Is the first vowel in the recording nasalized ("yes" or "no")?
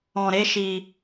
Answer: yes